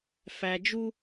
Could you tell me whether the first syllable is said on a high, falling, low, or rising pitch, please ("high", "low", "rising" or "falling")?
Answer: low